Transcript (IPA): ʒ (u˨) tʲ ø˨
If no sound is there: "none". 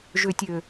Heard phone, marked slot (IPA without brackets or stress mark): ø˨